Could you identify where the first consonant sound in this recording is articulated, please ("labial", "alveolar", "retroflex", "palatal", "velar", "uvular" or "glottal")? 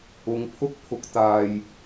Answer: velar